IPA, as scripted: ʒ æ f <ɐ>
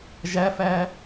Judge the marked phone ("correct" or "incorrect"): incorrect